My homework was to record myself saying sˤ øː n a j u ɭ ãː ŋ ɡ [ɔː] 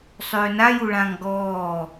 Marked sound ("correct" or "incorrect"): correct